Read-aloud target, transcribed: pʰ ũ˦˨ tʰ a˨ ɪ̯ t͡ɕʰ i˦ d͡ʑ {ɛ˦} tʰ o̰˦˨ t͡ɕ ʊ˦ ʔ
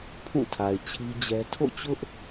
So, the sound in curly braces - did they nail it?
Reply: yes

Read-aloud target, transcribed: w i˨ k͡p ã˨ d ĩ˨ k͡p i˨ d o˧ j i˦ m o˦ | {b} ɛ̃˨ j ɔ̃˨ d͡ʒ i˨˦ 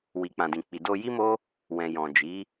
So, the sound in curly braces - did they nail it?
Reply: no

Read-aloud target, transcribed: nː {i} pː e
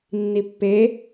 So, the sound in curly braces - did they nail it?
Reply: yes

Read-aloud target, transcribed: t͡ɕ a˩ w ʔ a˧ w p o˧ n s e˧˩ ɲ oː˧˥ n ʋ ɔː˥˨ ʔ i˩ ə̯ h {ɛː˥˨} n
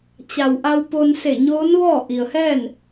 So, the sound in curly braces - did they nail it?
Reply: yes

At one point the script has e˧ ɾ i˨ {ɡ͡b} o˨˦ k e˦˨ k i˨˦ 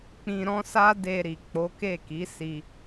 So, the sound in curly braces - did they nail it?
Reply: no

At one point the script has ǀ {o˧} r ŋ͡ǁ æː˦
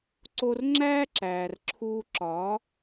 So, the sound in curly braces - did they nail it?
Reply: yes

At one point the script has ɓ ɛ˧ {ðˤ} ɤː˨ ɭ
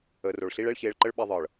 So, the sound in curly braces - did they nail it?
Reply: yes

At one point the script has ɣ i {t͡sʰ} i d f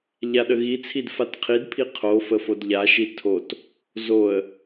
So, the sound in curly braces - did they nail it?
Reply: yes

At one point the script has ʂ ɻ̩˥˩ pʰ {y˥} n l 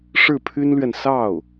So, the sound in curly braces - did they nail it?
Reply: yes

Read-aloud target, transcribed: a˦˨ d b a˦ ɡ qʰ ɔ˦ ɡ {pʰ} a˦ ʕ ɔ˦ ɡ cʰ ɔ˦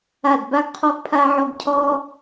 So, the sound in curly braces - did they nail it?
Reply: yes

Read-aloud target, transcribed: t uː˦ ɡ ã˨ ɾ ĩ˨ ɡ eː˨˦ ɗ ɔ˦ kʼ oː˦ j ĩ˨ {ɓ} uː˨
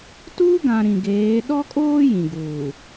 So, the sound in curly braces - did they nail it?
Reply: no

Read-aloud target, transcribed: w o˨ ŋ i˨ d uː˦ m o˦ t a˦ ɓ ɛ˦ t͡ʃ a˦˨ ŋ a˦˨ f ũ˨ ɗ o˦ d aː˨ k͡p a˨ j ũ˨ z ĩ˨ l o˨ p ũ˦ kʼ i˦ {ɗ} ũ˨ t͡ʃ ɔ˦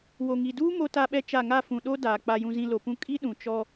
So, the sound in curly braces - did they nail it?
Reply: yes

